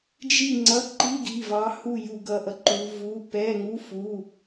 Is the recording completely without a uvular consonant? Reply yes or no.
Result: yes